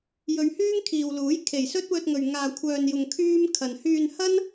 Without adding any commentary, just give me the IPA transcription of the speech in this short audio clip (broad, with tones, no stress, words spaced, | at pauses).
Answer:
jɵ˨˧ɥhyː˥ŋkʰiː˨w luː˨˥j kʰe˨˩jsɵ˥t̚wɵ˧t̚ŋɵ˨ɥ ŋaː˨kʷʰœː˨njʊ˨ŋ kʰyː˥m kʰɐ˨n hyː˧nhɐ˥n